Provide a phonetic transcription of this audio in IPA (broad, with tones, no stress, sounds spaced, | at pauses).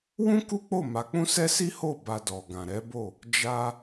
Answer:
w ũ˦ k u˦ k͡p o˦˨ m a˨˦ k͡p ũ˦ s ɛ˦ s i˦ h o˦˨ b a˧ d ɔ˨ ɡ ã˨ ɾ ɛ˨˦ b o˦˨ | d͡ʒ a˧